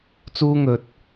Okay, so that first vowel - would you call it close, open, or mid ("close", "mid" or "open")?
close